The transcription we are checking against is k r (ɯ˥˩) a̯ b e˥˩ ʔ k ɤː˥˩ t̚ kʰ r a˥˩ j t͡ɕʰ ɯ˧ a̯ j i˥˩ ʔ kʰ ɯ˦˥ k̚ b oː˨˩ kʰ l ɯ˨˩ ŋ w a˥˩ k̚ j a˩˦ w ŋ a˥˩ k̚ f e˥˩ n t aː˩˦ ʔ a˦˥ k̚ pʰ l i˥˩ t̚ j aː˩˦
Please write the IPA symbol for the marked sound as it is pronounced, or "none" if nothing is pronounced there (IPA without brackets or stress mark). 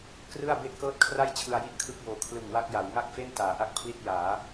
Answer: ɯ˥˩